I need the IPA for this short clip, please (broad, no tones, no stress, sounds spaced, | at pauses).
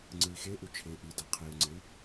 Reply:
ŋ͡ǀ ɯ i̯ x e ʔ u t͡ʃʰ e ʔ i d a qʰ i u̯ ŋ͡ǀ e y̯